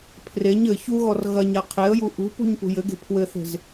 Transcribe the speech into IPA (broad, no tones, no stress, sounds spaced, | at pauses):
pʰ r e ɲ ɘ ç u ɣ ɔ r ɣ ɐ ɲ a qʰ e ə̯ j u ʔ ṳ p ṳ ɲ p ṳ j ɘ ɡ e̤ pʰ w ɘ θ e̤ z